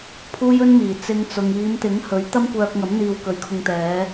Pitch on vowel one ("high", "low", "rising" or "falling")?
high